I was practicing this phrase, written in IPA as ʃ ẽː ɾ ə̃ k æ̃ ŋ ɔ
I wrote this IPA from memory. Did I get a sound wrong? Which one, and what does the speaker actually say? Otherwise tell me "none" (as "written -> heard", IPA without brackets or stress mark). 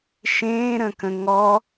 æ̃ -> ə̃